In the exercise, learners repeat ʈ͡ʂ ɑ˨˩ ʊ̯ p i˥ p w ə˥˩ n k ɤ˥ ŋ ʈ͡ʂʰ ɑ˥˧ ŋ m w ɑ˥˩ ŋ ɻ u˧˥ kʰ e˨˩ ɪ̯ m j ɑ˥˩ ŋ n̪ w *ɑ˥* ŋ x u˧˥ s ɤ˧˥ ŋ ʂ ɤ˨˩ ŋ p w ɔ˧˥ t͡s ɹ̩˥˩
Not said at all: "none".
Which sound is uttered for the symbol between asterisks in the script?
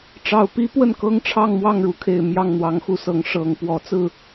ɑ˧˥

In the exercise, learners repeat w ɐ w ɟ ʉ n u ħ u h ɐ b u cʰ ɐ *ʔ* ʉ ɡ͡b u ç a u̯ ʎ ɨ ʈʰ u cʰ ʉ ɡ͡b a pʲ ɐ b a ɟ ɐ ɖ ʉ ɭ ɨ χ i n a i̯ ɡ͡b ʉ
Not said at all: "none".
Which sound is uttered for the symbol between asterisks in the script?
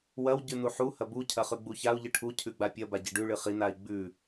χ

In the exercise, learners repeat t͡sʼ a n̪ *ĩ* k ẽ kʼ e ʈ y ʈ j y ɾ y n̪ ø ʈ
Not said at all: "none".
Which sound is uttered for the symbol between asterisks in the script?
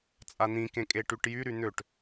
ĩ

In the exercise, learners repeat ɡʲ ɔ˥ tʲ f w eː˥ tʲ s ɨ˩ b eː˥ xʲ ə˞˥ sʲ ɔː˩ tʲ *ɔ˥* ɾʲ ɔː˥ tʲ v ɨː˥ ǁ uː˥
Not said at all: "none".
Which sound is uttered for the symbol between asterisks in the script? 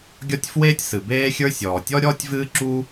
ɔ˥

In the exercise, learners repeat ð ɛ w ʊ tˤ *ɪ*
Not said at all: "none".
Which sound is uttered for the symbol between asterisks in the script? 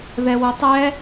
ɛ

